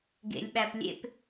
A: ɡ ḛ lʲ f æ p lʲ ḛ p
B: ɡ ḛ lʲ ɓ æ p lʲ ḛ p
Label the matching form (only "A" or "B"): B